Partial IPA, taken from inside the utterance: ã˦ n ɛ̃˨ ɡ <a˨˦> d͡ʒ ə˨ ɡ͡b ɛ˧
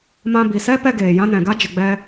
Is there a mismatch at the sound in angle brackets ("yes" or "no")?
yes